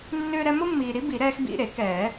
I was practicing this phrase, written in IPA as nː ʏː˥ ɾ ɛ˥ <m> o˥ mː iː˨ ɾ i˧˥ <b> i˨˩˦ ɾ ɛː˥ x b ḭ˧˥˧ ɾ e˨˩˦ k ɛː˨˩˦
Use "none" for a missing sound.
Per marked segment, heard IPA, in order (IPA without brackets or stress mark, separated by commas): m, b